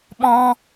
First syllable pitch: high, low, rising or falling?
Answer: high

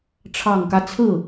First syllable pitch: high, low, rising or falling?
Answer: low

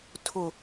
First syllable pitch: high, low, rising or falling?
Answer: low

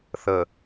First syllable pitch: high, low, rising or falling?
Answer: low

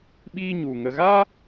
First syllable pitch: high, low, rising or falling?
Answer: high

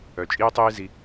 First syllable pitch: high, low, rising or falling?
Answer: low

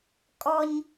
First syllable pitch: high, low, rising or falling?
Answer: high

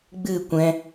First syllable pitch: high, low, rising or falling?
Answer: falling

